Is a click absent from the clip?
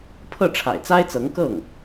yes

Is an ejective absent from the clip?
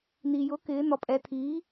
no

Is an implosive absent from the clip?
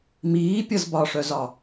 yes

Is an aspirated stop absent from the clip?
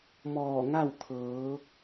no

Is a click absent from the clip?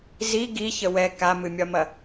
yes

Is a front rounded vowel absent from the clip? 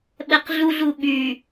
no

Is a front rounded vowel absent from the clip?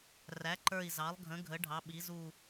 yes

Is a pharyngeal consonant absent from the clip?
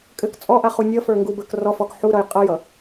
no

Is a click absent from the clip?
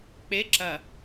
no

